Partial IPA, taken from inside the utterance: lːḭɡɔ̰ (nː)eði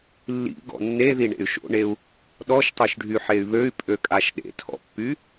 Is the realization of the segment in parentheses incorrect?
no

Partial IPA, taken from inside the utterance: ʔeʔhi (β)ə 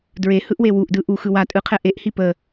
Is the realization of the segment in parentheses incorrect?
yes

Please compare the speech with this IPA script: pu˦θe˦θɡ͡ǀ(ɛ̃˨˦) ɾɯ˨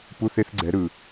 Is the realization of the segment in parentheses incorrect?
yes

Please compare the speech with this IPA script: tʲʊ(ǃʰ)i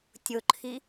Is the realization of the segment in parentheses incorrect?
no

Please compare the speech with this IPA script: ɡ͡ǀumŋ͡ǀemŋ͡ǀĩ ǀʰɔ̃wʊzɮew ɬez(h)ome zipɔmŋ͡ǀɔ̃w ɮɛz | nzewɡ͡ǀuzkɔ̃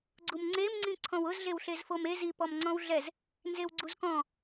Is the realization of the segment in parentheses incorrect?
yes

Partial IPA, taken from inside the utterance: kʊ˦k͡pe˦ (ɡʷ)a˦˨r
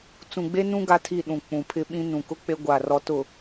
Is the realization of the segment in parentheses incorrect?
no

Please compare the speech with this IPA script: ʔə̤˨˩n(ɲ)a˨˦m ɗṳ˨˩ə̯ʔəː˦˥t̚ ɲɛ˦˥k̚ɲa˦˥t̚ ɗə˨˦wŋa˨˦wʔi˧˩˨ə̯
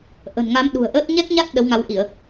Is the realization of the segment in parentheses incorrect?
yes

